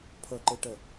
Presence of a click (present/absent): present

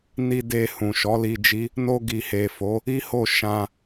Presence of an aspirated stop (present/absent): absent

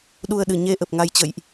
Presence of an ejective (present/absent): absent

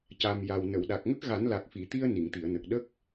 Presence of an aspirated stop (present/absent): absent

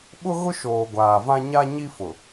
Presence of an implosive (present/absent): present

